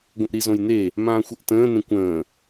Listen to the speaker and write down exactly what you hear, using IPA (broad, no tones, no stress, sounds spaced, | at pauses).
ɡʷ ə̃ ʔ ɾ i z õ j n e | m ãː xʷ ə ʔ t ə̃ː n ẽ kʷ ə̃ː